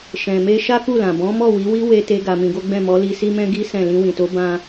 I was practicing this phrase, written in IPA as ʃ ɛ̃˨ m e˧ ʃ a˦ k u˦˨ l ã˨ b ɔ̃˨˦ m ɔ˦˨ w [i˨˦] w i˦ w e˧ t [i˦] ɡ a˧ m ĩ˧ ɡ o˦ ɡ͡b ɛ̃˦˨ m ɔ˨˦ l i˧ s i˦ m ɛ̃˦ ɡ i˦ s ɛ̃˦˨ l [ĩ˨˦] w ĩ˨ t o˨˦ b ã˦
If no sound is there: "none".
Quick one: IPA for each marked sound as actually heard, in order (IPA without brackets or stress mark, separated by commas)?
i˨˦, e˦, ĩ˧